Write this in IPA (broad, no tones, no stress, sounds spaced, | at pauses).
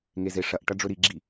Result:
ŋ e z e ʂ ɐ ʔ ʈ ɐ ɖ͡ʐ ɵ ɾ i ɡ͡ǁ i